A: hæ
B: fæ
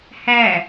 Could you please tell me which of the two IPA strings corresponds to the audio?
A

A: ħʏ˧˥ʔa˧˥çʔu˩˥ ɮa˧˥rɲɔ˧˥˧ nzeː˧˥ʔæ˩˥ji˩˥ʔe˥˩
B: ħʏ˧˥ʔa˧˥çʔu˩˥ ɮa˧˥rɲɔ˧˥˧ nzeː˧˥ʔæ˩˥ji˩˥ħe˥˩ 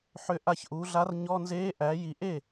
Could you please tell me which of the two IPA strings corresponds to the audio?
A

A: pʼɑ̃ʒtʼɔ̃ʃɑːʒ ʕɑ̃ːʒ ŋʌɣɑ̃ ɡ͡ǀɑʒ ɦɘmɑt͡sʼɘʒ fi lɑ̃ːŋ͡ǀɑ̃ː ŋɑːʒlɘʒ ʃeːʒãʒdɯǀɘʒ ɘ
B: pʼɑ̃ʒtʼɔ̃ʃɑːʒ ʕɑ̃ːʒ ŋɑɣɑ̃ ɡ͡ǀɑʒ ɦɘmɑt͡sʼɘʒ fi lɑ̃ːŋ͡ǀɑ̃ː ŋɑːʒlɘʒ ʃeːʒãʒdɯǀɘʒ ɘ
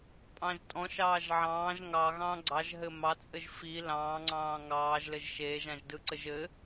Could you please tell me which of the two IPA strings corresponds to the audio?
B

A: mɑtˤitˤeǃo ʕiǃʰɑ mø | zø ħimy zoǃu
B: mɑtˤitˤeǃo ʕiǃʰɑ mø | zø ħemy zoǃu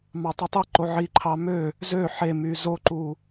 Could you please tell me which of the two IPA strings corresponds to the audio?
B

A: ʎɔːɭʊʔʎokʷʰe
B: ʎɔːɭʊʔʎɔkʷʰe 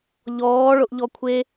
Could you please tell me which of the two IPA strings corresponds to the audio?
B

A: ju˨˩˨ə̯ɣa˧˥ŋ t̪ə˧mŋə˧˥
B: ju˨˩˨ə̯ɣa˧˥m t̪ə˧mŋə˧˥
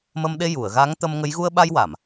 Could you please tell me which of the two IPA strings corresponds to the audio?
A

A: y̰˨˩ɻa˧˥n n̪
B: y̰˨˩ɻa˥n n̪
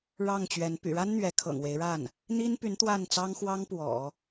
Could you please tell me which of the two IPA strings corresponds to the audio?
B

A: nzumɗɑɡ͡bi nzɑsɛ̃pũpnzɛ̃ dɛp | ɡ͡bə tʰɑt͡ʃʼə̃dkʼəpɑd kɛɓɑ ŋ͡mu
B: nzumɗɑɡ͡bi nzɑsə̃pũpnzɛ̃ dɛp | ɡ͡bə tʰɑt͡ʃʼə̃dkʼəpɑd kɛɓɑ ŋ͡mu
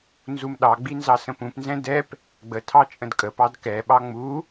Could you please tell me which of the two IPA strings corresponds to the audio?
B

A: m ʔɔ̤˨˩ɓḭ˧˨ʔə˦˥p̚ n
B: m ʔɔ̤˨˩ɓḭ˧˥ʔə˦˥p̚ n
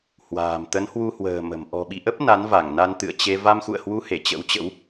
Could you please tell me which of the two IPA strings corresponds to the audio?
A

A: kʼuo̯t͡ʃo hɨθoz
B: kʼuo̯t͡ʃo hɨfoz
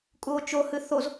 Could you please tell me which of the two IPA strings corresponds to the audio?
A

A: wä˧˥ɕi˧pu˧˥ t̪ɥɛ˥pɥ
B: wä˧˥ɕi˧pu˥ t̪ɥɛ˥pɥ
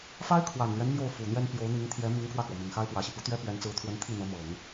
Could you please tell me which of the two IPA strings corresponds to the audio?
A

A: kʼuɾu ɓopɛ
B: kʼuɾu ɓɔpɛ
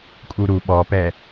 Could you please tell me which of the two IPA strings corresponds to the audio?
B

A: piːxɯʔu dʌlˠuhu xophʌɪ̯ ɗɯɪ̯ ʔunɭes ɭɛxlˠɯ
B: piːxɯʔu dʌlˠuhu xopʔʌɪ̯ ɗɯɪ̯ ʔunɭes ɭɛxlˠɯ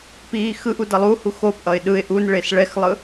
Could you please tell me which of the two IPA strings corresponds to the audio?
B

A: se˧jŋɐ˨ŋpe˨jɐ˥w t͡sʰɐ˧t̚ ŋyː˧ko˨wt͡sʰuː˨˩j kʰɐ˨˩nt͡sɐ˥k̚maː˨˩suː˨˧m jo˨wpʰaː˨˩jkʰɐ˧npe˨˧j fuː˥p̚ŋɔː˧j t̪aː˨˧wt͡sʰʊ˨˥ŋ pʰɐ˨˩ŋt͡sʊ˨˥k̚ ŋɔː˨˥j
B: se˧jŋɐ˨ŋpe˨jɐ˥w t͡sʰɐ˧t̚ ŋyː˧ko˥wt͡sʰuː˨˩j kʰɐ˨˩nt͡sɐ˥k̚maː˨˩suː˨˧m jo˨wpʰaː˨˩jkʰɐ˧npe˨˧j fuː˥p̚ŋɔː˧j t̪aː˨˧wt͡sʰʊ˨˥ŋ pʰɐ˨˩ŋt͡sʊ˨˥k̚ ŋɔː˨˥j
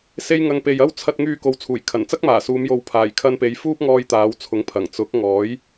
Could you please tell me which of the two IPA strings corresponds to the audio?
A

